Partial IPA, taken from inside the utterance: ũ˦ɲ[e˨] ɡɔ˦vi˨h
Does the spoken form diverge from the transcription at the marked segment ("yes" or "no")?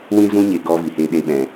no